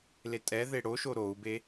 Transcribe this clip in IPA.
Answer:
l e tʼ ɛ ð e ɽ o ʃ o ɾ o u̯ b e

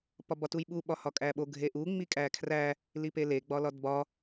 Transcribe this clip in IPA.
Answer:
p ɒ b ɒ t u j ɓ u ɓ ɒ h ɒ kʼ æ ɓ o ɡʱ e ʔ u ŋ͡m i kʼ æ kʰ r æ | l i p e l e ɡ͡b ɒ l ɒ d b ɒ

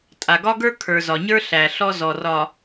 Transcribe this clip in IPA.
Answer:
tʼ a˨ ɡ ɒ˦ ɡ ə˞˦ kʰ ə˞˨ z ɒ˨ ɲ ə˞˦ ɬ æ˨ ɬ ɔ˦ z ɔ˨ r ɒ˨

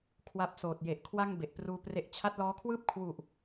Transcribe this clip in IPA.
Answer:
kʰ w a˦˥ p̚ s oː˨˩ t̚ j e˨˩ ʔ kʰ w a˥˩ ŋ b e˨˩ ʔ p r uː˦˥ p r e˦˥ ʔ t͡ɕʰ a˦˥ t̚ l ɔː˦˥ kʰ w ɯː˥˩ p̚ kʰ w u˨˩ ʔ

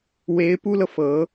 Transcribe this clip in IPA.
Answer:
w e˧˥ ɪ̯ p u˥ l ɤ˨ f ɤ˧˥

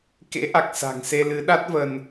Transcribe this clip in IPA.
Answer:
k ḛ˧˥ ʔ a˨˩ k̚ s a̤˨˩ ŋ s e˧ l ɨ˨˦ ɗ a˦˥ t̚ v ə˧ n

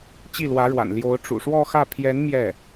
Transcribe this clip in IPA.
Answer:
t͡ɕ i˥˩ l w ä˧˥ ɻ w a̰˨˩ n l j o˧˥ ʊ̯ ʈ͡ʂ ṵ˨˩ ʂ w ɔ˥˧ x ä˥˩ pʰ j ɛ˧˥ n m j ɛ˥˩

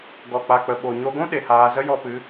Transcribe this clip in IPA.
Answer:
ɡ ɔ˨ k͡p a˨ k͡p ə˨ ɓ o˨ ɲ o˧ ɡʷ ũ˦ ɗ e˨ h aː˧ z ə˦ j ɔ˧ p ɨ˨˦

